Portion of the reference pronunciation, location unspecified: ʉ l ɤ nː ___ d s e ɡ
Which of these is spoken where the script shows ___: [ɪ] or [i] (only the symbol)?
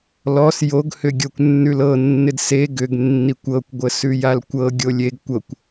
ɪ